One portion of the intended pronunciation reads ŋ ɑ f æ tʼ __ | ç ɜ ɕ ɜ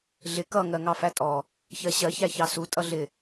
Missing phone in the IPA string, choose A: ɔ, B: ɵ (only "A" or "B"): A